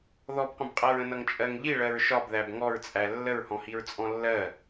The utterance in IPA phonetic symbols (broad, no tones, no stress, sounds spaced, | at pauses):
ð ɔ b qʷ ə̃ b qʼ æ ɹ ə̃ n ʌ ŋ t͡ʃʼ ɜ ŋ ʎ i ɭ ɜ ɹ ʃ ɒ b ð æ b ŋ ɔ ɹ t͡sʼ æ lː ə ɹ h ɔ̃ h i ɹ t͡sʼ ɔ̃ lː ɜ